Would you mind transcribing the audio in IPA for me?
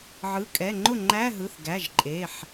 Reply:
ʕɯ˩˧˩kʼɛ˩˧˩ŋ͡ǃʊ˥˩ŋ͡ǃæ˧˥˧ ɦɯ˩˧˩θɡæ˩˧˩ʒǃʼe˩˧˩ħ

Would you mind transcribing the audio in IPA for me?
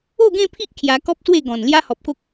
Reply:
o˥˧ɡẽ˥˧pʰi˦ʔ kʰja˧kɔ˦p̚swe˥˧ ɡɔ̃˨˩n lja˦hɔ˨p̚ko˦k̚

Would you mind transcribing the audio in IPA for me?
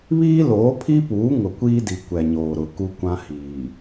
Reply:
βiː˦loː˨˦pʰi˦puː˨˦ ŋʊ˨kʷiː˦di˨ kʷɛ˨ɲoː˨ɾʊ˨ ku˦kʷã˦hiː˨

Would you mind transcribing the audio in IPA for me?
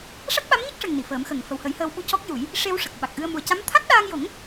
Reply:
ʂa˦˥t̚ɓa˧˥mɲə˦˥k̚ʂə˨˩ŋ ni˨˩˨fəː˨˩˦mxə˨˩ŋ fə˨˩whə˨˩˦jhəː˧w ɓu˧cɔ˦˥k̚ju˨˩˦j | ʂe˧wʂə˨˩k̚ ɓa˨˩k̚ʔɨ˧ə̯ mu˨˩ə̯ca˧˥m t̪ʰa˦˥t̚ɗaː˧ŋjo˨˩˦ŋ

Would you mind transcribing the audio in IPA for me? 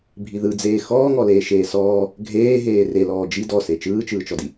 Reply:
bʱiðɯd͡zeː xɔːŋɔ leːʃeːsɔː | ɡʱeː ɦeːrelɔː d͡ʒi dɔse t͡ʃɯːt͡ʃɯːt͡ʃɔdi

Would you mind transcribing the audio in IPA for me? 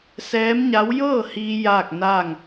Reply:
sɛː˧˥mɲa˧˥w jɤː˥˨hiː˧ jaː˥˨k̚naː˥˨ŋ

